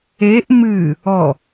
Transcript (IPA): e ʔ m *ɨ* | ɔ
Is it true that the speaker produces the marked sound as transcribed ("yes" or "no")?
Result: yes